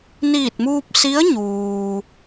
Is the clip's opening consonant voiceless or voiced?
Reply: voiced